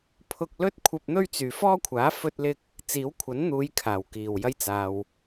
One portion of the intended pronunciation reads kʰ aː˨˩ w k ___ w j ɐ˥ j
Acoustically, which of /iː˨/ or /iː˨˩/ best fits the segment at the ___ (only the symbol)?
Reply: iː˨˩